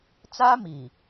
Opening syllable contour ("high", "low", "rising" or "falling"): high